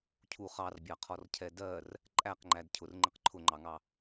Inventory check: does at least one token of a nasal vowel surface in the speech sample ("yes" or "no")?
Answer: no